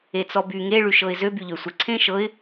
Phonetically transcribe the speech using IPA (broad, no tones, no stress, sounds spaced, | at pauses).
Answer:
e t͡s ɔ b y ŋ e ɭ y ʃ ɤ ɪ̯ z ø b y ʎ ø sʷ ə ǀʰ ẽ ʃ ɤ ɪ̯